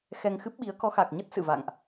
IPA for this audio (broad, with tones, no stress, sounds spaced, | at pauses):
x ɛ˧ ŋ x ɨ˦˥ p̚ ɓ i˨˦ ə̯ k ɔ˨˦ x a˨˩ k̚ ɲ ə˦˥ t̚ s ɨ̰˧˨ v a̰˧˨ ŋ ʔ